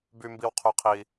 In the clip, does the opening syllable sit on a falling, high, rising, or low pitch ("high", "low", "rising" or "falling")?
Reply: high